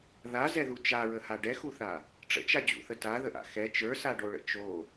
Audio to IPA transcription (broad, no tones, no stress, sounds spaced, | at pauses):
ð a z ɛ ð u t͡ʃ a ɹ ə h a ɖ ɛ x u θ a | ʈ͡ʂ ə̰ t͡ʃ a d͡ʑ ṵ θ ə t a ð ə ʔ a̰ x ɛ t͡ʃ ə˞ s a ɖ o ɭ ə̰ t͡ʃ o